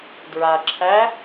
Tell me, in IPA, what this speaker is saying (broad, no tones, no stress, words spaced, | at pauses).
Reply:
dɹa ǁʰæ